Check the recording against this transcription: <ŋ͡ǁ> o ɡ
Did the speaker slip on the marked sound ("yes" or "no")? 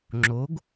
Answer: no